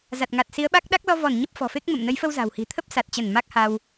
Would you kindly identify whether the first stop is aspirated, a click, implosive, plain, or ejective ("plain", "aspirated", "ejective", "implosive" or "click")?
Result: plain